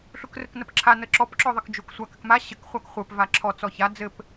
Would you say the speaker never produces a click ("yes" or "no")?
no